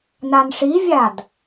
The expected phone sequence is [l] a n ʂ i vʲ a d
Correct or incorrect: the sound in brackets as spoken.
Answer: incorrect: n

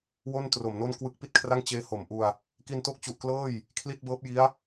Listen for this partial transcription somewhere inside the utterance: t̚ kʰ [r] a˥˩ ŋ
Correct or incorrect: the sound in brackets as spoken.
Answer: correct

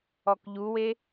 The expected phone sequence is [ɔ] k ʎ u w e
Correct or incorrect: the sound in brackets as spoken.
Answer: correct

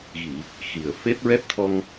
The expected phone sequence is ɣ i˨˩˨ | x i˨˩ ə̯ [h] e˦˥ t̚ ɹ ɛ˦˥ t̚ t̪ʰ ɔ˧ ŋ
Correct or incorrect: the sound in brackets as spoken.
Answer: incorrect: f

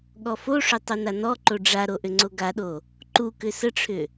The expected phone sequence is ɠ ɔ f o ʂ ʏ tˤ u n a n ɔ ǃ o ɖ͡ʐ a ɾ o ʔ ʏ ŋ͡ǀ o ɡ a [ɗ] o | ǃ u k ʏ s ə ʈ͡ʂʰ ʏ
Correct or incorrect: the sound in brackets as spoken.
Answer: correct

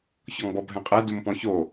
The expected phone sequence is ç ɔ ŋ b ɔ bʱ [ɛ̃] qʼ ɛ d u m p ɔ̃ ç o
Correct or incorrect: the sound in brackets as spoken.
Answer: correct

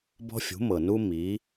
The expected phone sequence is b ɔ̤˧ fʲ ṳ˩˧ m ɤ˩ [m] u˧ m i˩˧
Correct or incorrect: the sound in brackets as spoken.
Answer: incorrect: n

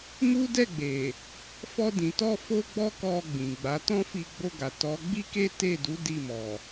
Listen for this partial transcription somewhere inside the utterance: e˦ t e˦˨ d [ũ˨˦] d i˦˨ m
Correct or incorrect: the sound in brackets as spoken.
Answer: incorrect: u˨˦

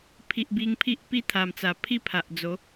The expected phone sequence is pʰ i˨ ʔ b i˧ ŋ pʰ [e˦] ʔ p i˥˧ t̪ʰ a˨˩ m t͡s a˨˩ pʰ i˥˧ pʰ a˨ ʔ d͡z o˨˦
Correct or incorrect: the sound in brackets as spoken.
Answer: incorrect: i˦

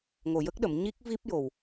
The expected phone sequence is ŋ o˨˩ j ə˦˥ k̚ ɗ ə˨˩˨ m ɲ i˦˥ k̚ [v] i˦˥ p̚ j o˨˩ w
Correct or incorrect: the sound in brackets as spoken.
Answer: correct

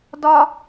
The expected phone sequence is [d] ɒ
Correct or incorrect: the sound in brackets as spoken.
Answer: correct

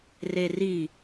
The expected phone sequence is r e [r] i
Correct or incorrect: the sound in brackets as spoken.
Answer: correct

